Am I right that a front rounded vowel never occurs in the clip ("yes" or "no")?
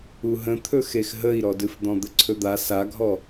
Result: yes